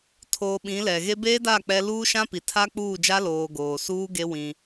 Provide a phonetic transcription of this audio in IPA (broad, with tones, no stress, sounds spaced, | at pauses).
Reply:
tʰ oː˨ ɓ ĩ˨˦ l ɛ˨ ɣ e˦ b eː˦ d a˦˨ k͡p ɛ˦ l uː˦ ʃ ã˦ p i˨ tʰ a˦ k͡p uː˦˨ d͡ʒ a˦ l oː˨ ɡ oː˨ s uː˦ ɡ e˦ w ĩ˦